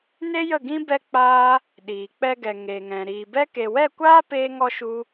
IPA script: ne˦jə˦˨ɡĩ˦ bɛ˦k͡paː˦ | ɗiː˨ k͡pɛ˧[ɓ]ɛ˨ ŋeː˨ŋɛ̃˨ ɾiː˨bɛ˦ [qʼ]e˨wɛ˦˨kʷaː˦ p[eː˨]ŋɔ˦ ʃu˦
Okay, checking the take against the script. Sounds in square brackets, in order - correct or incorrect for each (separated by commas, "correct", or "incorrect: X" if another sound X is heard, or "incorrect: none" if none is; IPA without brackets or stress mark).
incorrect: ɡ, incorrect: k, incorrect: eː˦